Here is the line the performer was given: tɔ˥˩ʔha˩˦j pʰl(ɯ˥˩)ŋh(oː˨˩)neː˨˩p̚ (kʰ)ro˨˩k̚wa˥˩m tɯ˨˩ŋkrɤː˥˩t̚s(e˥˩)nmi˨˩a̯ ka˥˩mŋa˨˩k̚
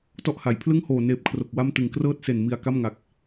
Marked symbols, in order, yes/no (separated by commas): yes, yes, yes, no